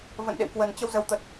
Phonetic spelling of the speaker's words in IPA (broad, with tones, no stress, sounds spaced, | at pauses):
v ə̰˧˨ n ɗ ḛ˧˨ w k w ə˨˩ n t͡ɕ ə˧ w z ə˨˦ w t̪ ə˨˩ t̚